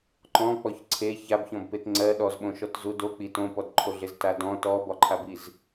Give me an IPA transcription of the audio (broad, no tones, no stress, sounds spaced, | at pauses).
ǃ ɔ̃ k͡p ɔ ç ǀʰ e ç a b ç ɔ̃ b p e t ŋ͡ǀ ɜ ɗ ɔ z ɓ õ ʃ ɔ t z u d o k͡p i t õ p ɔ d ǃʰ o ɮ e z t a d ɔ̃ t ɔ b ɒ ǃʰ a b i z